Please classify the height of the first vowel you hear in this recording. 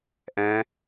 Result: mid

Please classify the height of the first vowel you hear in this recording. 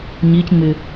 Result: high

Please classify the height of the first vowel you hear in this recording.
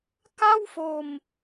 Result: low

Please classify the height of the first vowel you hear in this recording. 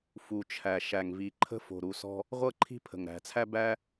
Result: high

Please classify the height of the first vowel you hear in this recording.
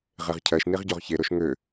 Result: mid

